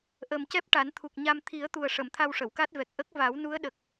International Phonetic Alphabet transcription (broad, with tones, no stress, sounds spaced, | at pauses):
ʔ ə˨˩ m c ɛ˦˥ p̚ ʈ a˨˩˦ n t̪ʰ u˨˩ k̚ ɲ a˧ m t̪ʰ i˨˩˦ ə̯ t̪ u˨˩ ə̯ ʂ ə˨˩˨ m t̪ʰ a˧ w ʂ ə˨˩˨ w k a˦˥ t̚ v ɛ˨˩ k̚ ʔ ə˦˥ k̚ v a˨˩˦ w n u˧˥ ə̯ ɗ ə˨˩ k̚